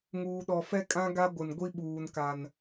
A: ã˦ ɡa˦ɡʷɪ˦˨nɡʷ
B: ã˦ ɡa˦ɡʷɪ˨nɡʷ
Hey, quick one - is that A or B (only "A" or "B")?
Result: B